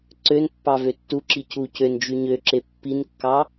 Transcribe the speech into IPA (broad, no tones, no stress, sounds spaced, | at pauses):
ǀ ø n pː ɑ v ø tː u ǁ i c u c ø n d͡ʒ y ɲ ø ǁ e pː i n kː ɑ